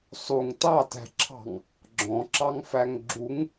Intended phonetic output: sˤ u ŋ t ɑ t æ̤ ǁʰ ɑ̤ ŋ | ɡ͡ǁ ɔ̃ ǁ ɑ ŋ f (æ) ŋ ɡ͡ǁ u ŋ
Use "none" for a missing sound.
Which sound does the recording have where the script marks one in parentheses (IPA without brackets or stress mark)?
æ